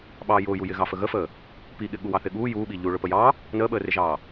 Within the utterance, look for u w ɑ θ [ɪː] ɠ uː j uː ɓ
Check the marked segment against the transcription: incorrect: ɪ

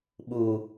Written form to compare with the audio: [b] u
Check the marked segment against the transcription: incorrect: ɓ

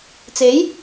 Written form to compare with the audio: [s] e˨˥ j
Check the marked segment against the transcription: incorrect: t͡s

